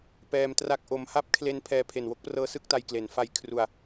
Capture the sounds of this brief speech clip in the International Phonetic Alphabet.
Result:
p ɛː˧ m t r a˦˥ k̚ ʔ o˦˥ m h a˥˩ p̚ kʰ l e˦˥ n pʰ ɛː˧ pʰ e˨˩ n w o˦˥ k̚ p r ɤː˦˥ s ɯ˥˩ k̚ t a˧ j k l e˩˦ n f a˨˩ j kʰ r u˨˩ a̯

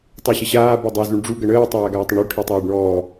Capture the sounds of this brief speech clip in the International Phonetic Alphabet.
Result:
tˤ u ɕ ə ɕ aː b ʌ dˤ ʌ z u ɳ ɖ͡ʐ u ɡ ə ɳ əː tˤ aː ɡ aː tˤ ʌ ɳ u ʈʰ i tˤ aː ɖ ɳ ɔː

